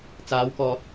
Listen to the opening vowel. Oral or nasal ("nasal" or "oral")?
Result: oral